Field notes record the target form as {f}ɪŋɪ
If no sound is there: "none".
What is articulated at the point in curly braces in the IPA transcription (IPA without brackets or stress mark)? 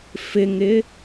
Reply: f